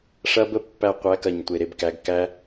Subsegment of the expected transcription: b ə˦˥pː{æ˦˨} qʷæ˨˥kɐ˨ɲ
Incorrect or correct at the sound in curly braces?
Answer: correct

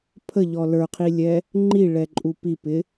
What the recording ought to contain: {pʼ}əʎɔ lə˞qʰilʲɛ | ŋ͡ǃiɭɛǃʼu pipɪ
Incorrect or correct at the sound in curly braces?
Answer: incorrect: pʰ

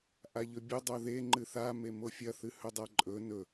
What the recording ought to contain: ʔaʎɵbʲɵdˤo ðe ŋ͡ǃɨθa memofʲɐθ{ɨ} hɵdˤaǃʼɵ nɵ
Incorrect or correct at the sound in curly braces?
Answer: correct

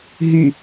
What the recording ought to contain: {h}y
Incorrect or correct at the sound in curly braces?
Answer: incorrect: ɦ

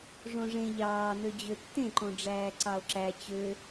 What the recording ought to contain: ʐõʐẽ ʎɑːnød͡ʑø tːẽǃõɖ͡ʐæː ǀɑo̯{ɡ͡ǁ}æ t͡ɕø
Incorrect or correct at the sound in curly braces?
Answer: incorrect: ǁ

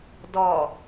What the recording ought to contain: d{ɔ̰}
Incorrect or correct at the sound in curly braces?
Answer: incorrect: ɔ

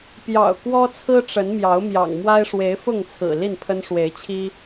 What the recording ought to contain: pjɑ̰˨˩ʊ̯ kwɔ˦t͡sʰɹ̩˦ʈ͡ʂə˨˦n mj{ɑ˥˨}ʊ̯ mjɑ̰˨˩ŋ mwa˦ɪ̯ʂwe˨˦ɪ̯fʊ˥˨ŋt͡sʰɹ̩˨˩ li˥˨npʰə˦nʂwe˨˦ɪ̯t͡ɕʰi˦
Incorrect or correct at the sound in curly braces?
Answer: incorrect: ɑ˨˦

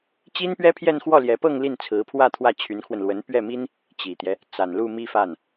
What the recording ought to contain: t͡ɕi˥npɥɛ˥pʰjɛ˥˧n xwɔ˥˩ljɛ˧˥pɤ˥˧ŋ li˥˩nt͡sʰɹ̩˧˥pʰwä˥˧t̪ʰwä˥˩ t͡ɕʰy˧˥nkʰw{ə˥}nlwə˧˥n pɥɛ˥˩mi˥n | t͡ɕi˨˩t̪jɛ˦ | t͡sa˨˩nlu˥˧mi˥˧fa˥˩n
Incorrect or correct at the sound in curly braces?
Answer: incorrect: ə˧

